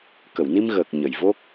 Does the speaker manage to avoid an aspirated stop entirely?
yes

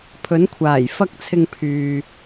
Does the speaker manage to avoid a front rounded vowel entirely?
no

